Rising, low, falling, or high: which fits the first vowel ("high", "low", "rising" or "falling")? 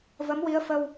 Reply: rising